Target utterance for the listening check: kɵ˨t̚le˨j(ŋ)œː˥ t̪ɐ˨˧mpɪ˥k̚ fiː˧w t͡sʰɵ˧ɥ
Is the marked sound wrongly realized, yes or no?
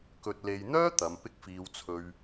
yes